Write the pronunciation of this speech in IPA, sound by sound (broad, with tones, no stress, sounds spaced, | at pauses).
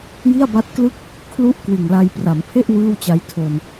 j i˥˩ a̯ b a˦˥ t̚ k l ɯ˥˩ k̚ | kʰ l u˦˥ ʔ k w ɯ˨˩ ŋ l a˧ j p r a˩˦ m pʰ e˥˩ ʔ w ɯː˥˩ w t͡ɕ a˦˥ j tʰ o˧ n